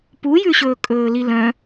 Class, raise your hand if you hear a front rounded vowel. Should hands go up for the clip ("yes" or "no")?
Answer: yes